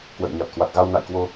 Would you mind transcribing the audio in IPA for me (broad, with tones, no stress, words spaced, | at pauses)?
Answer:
kwə̰˧˨jɲa˨˩t̚kwa˨˩t̚ ɣa˧wna̰˧˨jkwo˧